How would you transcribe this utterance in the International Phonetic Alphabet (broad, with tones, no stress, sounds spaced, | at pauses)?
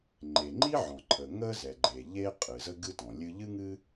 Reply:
ŋ͡ǃ e˩ ŋ͡ǃ i˥ ʕ ɔ̃˩ ǃʰ ə˩ ŋ ə˥ z ɛ˩ ɡ͡ǃ e˩ ʎ e˥ qʼ ɨ˩ z ə˥ ɡ ɨ˥ t ɔ̃˩ lʲ ɨ˥ ʎ ɨ˥ ŋ ɨ˥